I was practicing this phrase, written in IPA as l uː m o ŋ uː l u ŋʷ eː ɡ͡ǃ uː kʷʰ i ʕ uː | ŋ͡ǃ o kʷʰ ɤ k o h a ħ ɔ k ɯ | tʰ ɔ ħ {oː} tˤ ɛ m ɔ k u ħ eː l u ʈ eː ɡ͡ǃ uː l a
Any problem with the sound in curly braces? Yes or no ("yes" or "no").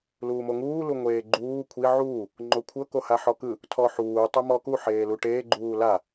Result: yes